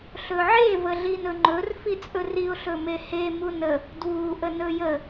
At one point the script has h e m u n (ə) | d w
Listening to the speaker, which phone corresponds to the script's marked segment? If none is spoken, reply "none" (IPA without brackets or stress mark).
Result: ə